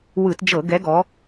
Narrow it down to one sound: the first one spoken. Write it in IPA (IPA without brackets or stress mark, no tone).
w